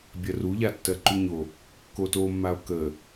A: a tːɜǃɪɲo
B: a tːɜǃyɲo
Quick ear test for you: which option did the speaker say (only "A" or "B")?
B